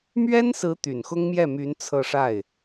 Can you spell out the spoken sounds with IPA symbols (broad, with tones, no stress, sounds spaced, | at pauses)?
m ɥ ɛ˥ n s ɹ̩˧˥ t̪ y˨˩ n x ʊ˥ ŋ m j ɛ˥˩ m y˧˥ n t͡sʰ ɤ˥˧ ʂ a˥˩ ɪ̯